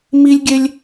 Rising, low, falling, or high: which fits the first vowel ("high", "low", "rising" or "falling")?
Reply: high